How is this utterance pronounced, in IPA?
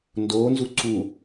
ndonzu ǀu

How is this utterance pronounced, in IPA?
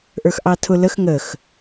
ʔə˞xʔɑtʰʊ ləx ŋəx

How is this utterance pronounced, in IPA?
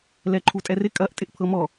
lɛǃʰutʼɛrɪ kʼɐʔ tʼɪʔpʰɤmɔ

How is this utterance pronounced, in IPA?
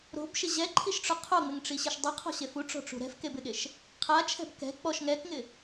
ɾo̤bʃɪ ʑɛǃʰiʃʈ͡ʂʊ qʰoŋ͡mɪŋʈ͡ʂiɕɪʃ dˤuqʰɔ̤ɕef uʈ͡ʂɔ̤ʈ͡ʂṳ ɾɛ̤fkebɪɠeʃ | qʰat͡ʃʰɛ̤b kɛ̤ k͡pɔʃ ŋɛkŋɪ

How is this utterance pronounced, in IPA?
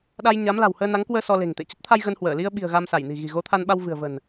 ɗa˧jɲa˨˦mla̤˨˩whəː˧ na˨˦ŋkwəː˧ sɔ˧le̤˨˩ŋt̪ḛ˧˨ t͡ɕə˦˥t̚t̪ʰa˧j ɣə˧nhwəː˧˩ li˧ə̯ ɓi̤˨˩ə̯ ɣa˧msa˧˩jni̤˨˩ ɣi̤˨˩ ɣo˨˦t̪ʰa˧nɓa˧w vɨ̤˨˩ə̯və̤˨˩n

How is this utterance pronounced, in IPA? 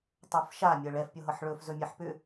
tˤofʃa mʲɤɭɛf pʲɤɦɤħɭɵf zɵmʲeħpʏ

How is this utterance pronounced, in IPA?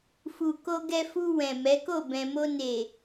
fu˧ ko˧ɡɛ˧fu˧ wɛ̃˨mɛ˨˦ko˦˨ bɛ̃˨mo˧ne˨

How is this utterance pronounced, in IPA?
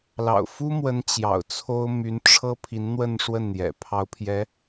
lɑ̰˨˩ʊ̯ fu˥mwə˧˥n t͡ɕjɑ̰˨˩ʊ̯t͡sʰo˥ʊ̯ my˧˥nʈ͡ʂʰɤ˥ pʰi˧˥nn̪wə˥˧nʂwə˥˩nn̪jɛ̰˨˩ pʰɑ˧˥ʊ̯pʰjɛ˧˥

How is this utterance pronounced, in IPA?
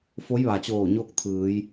fo˧˥jʋa˩t͡ɕoː˧˩ ɲoː˥˨k̚t̪ʰɯː˩˧j

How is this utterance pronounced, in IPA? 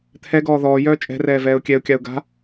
t̪ʰɛɡɔː ðɔːjœː t͡ʃʼɛ̤rɛː vɛːʊ̯kʲɛʊ̯kʲaʊ̯ ɡa̤

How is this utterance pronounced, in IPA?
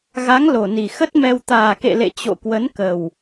ɣa˨˦ŋlo˨˩ni˨˩ xə˦˥t̚mɛ˧w t̪aː˨˩kḛ˧˨lḛ˧˨ t͡ɕo̰˧˨kwə˨˦n kə˨˩w

